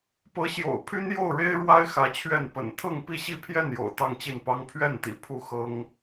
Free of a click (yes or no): yes